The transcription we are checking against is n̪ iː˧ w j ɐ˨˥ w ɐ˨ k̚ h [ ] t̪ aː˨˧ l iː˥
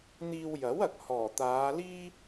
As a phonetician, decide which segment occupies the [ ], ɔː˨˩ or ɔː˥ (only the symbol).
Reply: ɔː˨˩